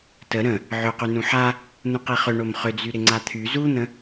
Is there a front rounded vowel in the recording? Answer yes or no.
yes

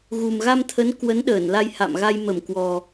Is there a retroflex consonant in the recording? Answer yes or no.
no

